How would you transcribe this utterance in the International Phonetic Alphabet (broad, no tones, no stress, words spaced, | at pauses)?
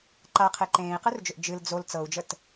ǃaqʰe ǃẽːi̯qɯrd͡ʒʏʔ d͡ʒɨl d͡zol t͡sɤu̯d͡ʒət